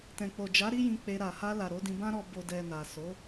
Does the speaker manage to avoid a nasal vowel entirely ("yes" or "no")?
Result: no